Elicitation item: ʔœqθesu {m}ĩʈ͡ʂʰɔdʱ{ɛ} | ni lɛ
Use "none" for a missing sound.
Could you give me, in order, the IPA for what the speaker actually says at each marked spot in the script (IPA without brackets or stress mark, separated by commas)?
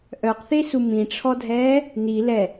m, ɛː